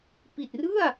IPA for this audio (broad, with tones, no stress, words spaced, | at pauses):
pi˨˩t̚rɯ˥˩a̯